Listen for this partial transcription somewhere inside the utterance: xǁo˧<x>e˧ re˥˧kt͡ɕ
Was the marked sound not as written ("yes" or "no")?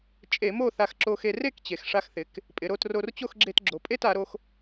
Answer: no